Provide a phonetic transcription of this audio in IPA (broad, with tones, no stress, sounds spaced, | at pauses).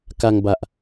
k a˧ ŋ b a˨˩ ʔ